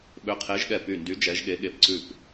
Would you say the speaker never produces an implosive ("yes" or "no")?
no